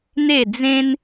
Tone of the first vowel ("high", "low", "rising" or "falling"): falling